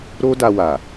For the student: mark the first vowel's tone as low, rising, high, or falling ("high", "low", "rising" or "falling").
high